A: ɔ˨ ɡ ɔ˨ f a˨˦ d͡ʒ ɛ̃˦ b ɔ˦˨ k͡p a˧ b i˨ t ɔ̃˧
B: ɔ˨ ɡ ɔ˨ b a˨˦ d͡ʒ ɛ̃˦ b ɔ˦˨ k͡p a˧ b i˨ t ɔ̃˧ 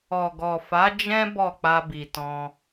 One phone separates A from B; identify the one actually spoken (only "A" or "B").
A